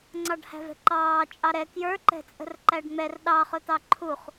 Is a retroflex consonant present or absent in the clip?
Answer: present